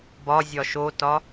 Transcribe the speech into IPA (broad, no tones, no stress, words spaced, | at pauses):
bɒzʲɒ ʃotɒ